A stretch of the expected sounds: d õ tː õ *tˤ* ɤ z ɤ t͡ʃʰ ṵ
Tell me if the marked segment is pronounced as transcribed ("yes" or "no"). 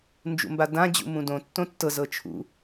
no